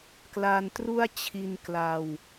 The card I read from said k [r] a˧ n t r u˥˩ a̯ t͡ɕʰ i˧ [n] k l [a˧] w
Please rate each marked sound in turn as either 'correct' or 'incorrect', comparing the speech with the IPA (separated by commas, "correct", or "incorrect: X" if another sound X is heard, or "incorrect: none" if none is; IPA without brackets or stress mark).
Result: incorrect: l, correct, correct